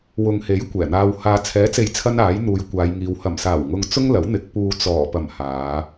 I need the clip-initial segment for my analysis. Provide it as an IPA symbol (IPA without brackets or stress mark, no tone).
w